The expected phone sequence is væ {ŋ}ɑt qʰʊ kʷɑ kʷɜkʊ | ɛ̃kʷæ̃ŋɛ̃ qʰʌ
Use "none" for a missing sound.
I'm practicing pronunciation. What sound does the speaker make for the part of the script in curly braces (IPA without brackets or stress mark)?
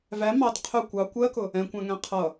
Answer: m